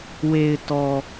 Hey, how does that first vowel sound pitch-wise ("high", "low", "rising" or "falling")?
low